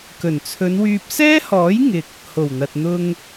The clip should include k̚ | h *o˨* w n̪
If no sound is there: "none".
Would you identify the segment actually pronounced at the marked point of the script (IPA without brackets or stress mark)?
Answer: o˨˩